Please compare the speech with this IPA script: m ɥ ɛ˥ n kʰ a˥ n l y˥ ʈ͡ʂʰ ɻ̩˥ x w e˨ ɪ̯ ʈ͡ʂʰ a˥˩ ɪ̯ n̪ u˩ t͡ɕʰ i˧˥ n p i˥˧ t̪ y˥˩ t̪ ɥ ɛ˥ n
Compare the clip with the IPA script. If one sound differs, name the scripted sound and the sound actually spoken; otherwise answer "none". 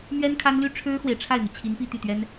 none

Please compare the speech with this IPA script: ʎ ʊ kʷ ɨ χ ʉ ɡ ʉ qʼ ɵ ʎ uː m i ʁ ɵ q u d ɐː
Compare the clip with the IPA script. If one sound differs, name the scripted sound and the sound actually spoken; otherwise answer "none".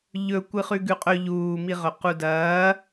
ʊ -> ɵ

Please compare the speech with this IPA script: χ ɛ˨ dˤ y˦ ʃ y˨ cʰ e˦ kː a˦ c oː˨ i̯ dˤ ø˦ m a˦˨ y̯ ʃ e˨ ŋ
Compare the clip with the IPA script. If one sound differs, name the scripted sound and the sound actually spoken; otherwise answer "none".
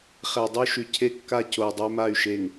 oː˨ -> o˨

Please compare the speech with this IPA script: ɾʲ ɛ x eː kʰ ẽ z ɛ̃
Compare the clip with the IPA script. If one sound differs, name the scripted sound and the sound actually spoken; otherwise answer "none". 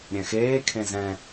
ɛ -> ɛ̃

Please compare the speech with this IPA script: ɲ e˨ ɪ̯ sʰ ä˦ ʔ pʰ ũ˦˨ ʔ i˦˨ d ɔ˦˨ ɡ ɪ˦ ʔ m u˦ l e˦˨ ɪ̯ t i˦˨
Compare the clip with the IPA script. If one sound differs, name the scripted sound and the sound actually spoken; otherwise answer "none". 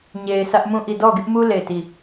pʰ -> m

